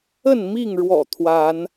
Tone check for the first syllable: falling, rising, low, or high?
falling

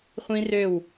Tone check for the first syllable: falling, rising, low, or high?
high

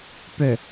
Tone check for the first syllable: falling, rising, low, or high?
low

